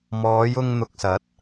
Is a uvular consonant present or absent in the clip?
absent